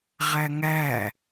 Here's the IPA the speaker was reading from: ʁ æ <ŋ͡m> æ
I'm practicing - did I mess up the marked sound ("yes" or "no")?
yes